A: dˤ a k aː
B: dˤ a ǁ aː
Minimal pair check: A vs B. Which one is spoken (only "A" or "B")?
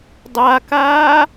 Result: A